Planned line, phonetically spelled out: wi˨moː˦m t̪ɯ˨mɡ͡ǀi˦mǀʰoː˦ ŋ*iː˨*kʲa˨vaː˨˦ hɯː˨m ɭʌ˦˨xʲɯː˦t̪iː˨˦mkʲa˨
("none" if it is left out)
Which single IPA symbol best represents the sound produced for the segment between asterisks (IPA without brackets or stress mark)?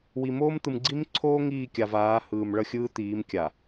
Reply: iː˦˨